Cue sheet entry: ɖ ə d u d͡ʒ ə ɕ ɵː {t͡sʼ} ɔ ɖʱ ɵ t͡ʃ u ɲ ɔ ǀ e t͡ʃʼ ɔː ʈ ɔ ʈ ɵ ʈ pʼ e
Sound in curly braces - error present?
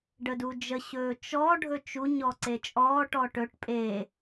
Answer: yes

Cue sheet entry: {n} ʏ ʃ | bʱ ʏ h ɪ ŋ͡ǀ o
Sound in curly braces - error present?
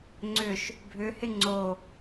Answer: yes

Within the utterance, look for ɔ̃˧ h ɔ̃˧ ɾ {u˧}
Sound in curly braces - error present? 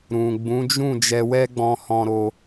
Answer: yes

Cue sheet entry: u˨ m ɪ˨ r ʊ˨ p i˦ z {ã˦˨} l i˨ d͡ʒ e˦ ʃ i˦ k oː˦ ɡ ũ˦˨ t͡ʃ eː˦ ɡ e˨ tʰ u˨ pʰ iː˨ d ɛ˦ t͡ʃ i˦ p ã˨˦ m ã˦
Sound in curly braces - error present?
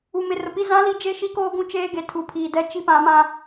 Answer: yes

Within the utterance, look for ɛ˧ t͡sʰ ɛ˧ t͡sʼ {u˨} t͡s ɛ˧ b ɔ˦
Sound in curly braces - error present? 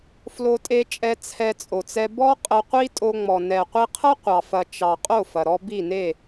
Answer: yes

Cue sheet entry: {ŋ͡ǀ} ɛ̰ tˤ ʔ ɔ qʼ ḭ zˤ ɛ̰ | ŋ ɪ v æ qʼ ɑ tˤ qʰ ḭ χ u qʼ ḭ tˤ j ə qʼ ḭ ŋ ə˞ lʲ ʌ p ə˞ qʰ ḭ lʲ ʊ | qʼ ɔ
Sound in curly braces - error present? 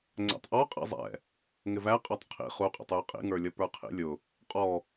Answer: no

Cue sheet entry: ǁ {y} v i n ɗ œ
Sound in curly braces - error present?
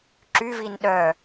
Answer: no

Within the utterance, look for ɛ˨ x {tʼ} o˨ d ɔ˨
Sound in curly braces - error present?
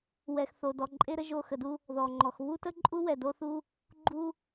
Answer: yes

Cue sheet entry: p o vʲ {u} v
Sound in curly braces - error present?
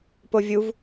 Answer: no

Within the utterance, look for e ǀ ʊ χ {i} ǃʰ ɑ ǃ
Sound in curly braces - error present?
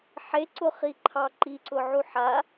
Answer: no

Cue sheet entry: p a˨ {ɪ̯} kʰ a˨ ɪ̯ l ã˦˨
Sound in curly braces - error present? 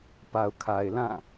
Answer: yes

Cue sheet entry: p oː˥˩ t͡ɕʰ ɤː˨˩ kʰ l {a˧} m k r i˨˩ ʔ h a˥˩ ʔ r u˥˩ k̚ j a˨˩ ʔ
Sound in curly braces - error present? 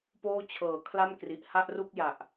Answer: yes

